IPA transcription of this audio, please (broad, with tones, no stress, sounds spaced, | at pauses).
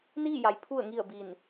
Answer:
n iː˥˨ j a˩ j pʰ u˧˩ ə̯ ŋ i˧˩ ə̯ b i˧˩ n